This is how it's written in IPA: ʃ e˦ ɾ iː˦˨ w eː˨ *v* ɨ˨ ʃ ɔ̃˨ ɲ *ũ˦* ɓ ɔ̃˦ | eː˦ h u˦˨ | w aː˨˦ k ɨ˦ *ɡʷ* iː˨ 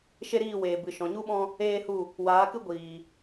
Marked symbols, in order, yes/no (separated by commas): no, no, yes